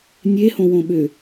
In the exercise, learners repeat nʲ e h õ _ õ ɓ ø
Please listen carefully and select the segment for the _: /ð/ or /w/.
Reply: w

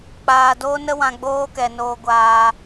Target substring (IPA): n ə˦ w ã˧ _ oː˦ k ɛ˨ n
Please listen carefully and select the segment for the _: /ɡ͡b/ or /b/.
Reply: ɡ͡b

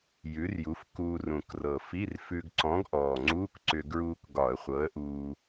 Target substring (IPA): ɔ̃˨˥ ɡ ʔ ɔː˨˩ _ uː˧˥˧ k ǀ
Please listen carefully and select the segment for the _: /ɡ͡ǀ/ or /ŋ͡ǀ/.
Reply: ŋ͡ǀ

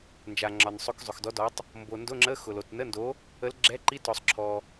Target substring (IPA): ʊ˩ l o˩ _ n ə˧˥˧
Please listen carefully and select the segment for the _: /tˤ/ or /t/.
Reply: t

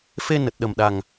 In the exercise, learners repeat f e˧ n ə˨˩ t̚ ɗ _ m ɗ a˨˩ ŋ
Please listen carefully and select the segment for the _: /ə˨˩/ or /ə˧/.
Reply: ə˨˩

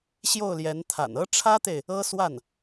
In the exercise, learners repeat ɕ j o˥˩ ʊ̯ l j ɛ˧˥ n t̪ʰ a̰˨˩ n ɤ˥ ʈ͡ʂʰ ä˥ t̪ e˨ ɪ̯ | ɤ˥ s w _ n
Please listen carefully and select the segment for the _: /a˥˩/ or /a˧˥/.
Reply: a˥˩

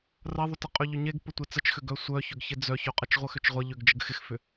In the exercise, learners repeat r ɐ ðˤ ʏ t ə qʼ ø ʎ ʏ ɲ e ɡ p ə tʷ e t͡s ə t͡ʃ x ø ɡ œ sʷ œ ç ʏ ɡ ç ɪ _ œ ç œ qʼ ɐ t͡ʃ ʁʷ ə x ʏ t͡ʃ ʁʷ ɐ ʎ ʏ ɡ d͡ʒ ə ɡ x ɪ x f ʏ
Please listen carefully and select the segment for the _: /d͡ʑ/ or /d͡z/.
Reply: d͡z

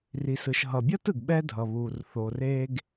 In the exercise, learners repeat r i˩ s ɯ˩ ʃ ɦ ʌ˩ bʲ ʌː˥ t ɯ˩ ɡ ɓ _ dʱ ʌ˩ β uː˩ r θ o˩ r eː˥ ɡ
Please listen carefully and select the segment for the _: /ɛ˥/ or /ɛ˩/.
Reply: ɛ˥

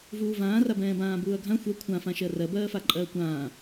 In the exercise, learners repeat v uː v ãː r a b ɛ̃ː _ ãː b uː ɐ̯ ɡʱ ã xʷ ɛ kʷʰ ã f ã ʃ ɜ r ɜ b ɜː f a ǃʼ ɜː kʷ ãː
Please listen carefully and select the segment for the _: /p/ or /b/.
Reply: b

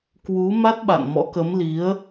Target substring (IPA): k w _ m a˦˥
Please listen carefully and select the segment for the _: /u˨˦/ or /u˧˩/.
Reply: u˨˦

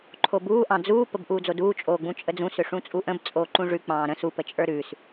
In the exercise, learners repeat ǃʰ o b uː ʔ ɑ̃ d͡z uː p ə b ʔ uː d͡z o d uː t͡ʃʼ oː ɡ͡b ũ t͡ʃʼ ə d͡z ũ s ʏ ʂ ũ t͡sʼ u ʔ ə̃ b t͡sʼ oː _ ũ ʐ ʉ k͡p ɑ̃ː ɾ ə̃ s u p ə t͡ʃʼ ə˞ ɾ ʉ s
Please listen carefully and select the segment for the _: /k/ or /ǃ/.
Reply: ǃ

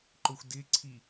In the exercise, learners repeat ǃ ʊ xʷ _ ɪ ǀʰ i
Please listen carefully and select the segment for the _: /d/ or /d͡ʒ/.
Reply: d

